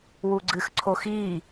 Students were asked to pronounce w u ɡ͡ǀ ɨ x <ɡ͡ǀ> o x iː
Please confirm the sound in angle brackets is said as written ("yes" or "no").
no